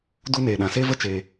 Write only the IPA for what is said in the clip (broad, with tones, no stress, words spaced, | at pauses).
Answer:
du˦neː˨ɗã˨ se˦və˦t͡ʃeː˨